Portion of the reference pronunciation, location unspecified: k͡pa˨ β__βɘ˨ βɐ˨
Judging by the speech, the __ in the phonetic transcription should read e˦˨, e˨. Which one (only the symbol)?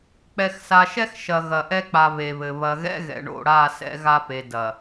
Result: e˨